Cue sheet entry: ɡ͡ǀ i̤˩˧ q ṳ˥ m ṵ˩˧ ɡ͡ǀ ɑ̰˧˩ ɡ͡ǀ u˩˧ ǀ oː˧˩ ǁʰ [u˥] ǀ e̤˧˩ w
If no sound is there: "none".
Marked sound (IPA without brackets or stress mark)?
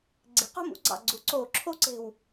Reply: o˥